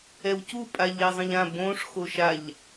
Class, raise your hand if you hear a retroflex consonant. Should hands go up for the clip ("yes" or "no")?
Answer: yes